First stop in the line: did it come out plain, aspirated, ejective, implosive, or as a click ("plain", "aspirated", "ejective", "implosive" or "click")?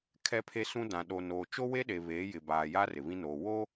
aspirated